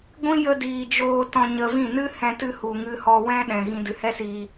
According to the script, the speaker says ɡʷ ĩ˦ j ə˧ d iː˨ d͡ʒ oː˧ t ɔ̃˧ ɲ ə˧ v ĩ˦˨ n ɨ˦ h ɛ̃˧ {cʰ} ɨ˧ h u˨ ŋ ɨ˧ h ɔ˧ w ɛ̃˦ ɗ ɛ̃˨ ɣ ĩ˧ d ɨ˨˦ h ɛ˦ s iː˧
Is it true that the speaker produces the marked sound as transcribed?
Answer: no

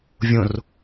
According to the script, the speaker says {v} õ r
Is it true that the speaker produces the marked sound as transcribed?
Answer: no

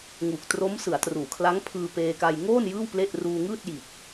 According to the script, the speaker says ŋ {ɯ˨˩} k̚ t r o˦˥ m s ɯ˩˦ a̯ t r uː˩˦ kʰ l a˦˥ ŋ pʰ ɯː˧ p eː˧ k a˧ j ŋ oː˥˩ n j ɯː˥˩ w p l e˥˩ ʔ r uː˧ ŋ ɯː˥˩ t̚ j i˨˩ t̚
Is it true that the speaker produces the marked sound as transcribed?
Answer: no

